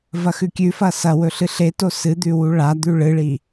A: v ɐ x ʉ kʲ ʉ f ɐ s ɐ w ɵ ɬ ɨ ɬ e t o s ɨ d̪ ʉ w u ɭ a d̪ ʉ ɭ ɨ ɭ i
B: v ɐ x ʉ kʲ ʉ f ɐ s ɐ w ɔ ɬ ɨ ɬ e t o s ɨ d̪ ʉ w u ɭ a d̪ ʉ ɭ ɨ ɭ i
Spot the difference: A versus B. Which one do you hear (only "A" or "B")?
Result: A